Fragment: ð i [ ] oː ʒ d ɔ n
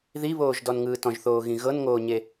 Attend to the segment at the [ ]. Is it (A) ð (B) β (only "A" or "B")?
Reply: B